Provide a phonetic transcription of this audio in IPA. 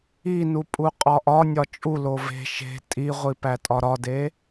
i n u pʼ u qʼ ɒ ʔ ɒ nʲ ɒ t͡ʃʼ u l o v e̤ ʃ e̤ tʼ i ʁʷ i p æ tʼ ɒ ɾ ɒ d e

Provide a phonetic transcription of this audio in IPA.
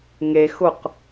ŋ e x ʊ q

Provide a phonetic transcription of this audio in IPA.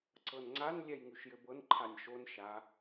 ǀ ɤ n ŋ͡ǀ a n lʲ ɛ j ŋ ʉ ʃ j ɘ b ɤ n ǃʰ a nʲ ʃ o n ʃ a

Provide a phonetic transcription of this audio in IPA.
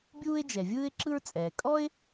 bʲ uː˥ ɪ̯ d͡ʒ ɛ˩ vʲ ɯː˥ ɪ̯ ǁ ɯ˥ ɹ t͡sʼ ɛː˩ kʼ ɔ˥ ɪ̯

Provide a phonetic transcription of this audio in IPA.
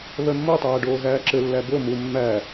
β œ mː o tˤ æː ɖ oː ɣ æː ǁ ɘ lː æ b o m u mː æ

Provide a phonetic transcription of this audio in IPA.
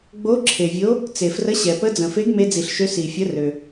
ɡ͡b o˨˥ ǁʰ e˩ vʲ o˨˥ | t͡s e˩ f r ə˨˥ ɕ ɛ˩ p ə˨˥ d͡z ə̃˩ f e˨˥ ɡ m e˨˥ d͡z i˩ ɬ ʃ ø˨˥ s i˩ fʲ ə˨˥ r ø˩

